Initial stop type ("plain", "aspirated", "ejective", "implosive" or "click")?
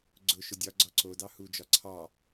click